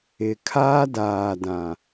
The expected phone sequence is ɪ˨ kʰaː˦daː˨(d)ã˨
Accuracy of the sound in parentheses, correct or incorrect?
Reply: correct